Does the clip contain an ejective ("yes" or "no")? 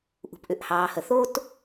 no